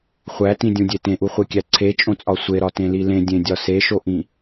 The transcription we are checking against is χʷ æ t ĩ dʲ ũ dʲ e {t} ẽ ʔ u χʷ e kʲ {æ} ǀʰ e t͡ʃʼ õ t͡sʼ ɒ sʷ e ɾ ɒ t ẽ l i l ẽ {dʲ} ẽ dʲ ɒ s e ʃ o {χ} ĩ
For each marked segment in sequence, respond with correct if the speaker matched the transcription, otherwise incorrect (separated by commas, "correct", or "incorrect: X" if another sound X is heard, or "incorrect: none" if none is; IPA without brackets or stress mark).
correct, correct, correct, incorrect: ʔ